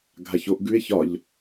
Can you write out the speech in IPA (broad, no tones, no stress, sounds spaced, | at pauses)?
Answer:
ɡʱ a ç o ʔ ɡ ʉ e̯ ç ɒ ʎ